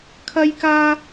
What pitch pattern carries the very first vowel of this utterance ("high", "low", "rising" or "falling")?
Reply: high